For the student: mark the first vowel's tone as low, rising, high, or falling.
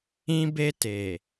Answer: high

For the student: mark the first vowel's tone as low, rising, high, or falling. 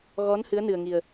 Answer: rising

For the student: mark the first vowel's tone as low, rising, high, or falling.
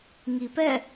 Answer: low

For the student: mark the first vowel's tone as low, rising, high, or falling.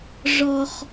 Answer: low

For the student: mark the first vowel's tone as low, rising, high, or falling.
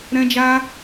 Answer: high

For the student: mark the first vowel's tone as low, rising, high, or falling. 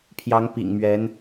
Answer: rising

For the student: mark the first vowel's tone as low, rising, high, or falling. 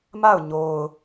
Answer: falling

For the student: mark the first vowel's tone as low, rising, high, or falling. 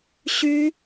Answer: high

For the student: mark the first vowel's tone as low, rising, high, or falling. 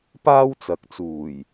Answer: high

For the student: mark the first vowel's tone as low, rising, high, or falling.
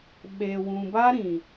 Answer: low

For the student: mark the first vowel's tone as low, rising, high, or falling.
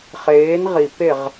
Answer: rising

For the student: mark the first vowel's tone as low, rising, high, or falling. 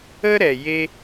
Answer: high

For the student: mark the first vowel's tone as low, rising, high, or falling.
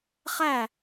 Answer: falling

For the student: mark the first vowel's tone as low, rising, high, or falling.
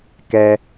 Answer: high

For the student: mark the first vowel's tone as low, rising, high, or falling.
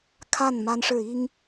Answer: falling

